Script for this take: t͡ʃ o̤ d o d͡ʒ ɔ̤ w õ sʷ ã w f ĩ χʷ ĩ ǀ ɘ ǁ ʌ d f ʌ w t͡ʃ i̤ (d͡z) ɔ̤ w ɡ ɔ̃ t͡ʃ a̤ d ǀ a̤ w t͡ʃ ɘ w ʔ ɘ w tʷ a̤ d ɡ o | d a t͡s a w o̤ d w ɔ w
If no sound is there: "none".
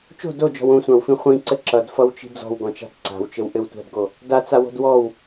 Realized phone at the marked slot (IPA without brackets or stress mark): d͡z